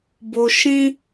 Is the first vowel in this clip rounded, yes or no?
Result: yes